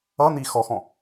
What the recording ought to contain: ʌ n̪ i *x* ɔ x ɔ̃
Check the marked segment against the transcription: correct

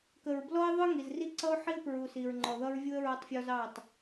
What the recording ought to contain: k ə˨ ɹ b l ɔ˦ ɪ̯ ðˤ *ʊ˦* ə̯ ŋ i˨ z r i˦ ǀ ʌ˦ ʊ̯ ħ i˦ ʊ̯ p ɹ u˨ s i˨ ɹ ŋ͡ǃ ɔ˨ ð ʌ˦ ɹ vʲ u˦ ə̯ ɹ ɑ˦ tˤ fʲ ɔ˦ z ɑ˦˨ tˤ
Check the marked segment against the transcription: correct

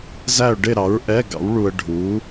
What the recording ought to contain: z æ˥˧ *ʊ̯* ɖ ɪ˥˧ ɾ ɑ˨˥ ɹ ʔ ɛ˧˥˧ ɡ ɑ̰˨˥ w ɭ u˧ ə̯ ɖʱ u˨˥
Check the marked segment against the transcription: correct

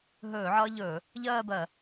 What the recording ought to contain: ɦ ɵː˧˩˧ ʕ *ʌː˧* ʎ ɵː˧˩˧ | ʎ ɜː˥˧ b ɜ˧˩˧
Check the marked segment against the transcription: correct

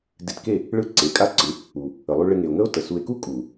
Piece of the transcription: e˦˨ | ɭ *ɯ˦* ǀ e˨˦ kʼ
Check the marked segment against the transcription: correct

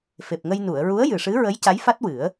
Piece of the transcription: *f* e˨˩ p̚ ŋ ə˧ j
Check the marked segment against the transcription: correct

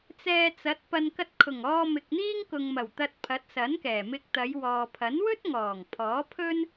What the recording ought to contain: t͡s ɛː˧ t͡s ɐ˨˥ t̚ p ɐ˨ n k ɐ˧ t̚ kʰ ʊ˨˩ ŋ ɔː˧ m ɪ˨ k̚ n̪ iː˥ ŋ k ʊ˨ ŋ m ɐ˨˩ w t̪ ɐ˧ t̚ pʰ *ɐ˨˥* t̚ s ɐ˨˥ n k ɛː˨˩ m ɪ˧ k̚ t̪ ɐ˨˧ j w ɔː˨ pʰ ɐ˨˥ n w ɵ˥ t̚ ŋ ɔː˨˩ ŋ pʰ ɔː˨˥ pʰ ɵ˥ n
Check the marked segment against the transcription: correct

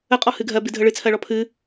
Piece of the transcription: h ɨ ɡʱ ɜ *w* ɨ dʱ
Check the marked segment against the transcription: incorrect: b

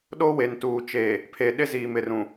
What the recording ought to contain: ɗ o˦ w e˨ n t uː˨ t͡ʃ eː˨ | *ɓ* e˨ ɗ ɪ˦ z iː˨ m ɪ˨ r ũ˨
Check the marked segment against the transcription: incorrect: pʰ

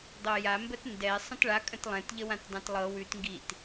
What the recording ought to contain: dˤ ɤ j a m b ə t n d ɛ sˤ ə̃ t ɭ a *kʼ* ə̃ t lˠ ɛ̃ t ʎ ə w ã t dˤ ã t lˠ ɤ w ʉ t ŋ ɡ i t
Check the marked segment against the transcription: correct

